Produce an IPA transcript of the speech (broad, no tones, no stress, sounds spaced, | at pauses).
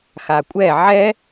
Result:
x a kʷʼ ɛ ʕ ɛ